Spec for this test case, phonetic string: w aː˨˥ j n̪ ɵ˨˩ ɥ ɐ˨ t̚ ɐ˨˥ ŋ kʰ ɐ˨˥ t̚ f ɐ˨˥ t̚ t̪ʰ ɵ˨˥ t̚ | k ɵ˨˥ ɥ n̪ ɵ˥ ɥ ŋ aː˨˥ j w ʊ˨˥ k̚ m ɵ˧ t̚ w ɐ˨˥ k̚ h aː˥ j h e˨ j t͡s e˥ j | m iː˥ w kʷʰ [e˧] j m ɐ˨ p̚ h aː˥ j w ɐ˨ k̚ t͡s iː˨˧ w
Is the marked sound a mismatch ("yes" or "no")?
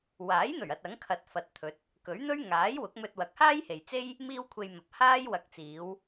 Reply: no